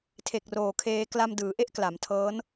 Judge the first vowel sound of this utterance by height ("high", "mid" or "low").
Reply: mid